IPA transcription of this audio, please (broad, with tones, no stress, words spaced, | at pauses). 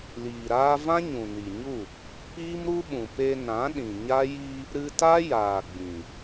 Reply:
liː˨ɾaː˦ vã˦ɲũ˨ni˨ɲu˦˨ | piː˦mɾu˦ɓũ˨ pe˧nã˨˦ɗĩ˨ɲa˦ ji˧ | ɾɨ˧ ta˦jaː˨ ɡ͡bĩ˨